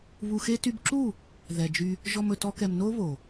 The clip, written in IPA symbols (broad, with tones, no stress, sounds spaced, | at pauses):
β u˧ x e˦ t y˧ b ǁ u˦˨ | ð ɛ˨ d͡ʒ y˧ | ʒ ɔ˧ m ɵ˨ t ɔ˧ k ɛ˨ m n o˦ β o˨